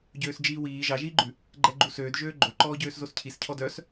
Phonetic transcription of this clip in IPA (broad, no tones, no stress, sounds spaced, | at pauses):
ɟ øː s d͡ʒ iː w iː ʒ ɑ ʒ iː ɡ͡ǃ ʉ | ɡ͡ǃ ɛ ɡ͡ǃ u s øː d ʒ øː ɡ͡ǃ o ǃ ɔː ɟ øː s z o s cʰ i s cʰ ɔ d œ s